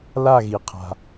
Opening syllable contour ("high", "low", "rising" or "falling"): falling